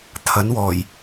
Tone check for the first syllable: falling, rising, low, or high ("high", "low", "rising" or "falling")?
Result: rising